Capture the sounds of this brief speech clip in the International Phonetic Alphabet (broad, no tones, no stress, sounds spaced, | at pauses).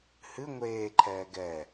h ɨ ŋʷ eː ǃʰ ɛː ɡ ɛ